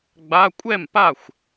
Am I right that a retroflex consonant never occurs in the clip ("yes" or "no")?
yes